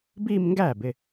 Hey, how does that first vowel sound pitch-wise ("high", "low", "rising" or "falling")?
falling